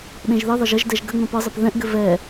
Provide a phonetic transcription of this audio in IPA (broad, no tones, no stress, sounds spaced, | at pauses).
ɗ ẽ ʒ ð ɘ ðˤ ə ʒ ə ʒ d ɛ ʒ ɡ ə ŋ͡m ɛ̃ p ɤ zˤ ɘ p ð ɛ̃ ʔ ɡ ɘ v ɛ